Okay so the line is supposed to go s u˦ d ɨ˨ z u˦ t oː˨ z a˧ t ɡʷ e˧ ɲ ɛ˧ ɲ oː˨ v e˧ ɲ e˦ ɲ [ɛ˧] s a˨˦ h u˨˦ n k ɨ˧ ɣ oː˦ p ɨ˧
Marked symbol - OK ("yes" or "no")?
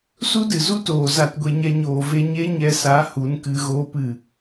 yes